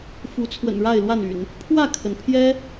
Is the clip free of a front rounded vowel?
no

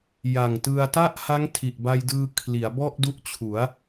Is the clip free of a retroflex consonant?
yes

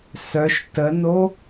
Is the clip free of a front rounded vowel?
no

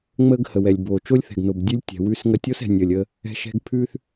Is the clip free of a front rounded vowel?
yes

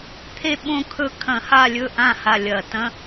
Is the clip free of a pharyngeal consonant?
yes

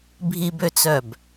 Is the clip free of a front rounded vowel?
no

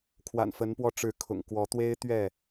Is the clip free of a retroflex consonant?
no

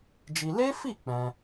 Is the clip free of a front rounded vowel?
yes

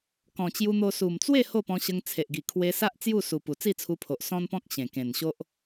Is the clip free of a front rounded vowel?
yes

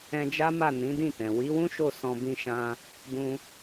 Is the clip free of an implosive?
yes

